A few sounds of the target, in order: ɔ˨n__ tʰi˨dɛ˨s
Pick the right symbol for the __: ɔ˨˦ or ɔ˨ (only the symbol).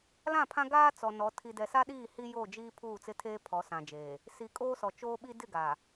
ɔ˨˦